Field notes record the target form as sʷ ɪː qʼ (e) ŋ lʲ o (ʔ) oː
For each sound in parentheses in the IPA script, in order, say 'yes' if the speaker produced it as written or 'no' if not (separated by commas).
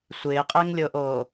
yes, yes